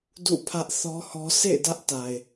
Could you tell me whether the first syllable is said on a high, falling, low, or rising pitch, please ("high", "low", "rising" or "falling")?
falling